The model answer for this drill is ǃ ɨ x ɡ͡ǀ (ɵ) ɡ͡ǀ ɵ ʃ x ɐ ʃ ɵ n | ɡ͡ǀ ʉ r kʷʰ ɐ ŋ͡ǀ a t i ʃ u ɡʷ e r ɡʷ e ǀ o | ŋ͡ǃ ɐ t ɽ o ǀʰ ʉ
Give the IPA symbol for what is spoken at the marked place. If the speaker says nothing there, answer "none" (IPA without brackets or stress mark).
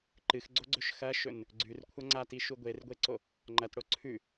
o